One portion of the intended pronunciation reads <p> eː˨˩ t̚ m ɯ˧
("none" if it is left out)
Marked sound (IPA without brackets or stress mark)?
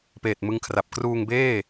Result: p